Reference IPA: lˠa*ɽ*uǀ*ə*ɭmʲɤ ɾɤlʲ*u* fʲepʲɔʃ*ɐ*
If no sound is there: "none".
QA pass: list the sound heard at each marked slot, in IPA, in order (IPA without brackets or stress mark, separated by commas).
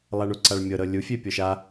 ɳ, a, u, a